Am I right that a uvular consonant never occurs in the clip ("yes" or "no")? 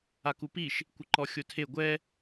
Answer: yes